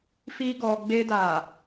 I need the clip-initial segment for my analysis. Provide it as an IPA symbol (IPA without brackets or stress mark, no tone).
f